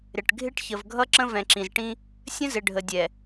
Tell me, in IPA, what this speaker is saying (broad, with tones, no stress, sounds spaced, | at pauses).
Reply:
ɾ ɪ˨ ʈ ɡʱ ɪ˦ ʈ ç ə˨ v ɡʱ ʌ˦ ǁ ə̃˦ v ɛ̃˨ ǁ ĩ˨ z ʈ ĩ˦ | sʲ ə̃˦ z ɪ˨ ɖʱ ə˨ dʲ ɛ˨